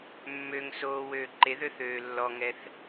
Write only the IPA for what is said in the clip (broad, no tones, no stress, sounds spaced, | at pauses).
mː ø ŋ s oː w øː ǃ e ð ø θ øː lː ɔ ŋ ɛ θ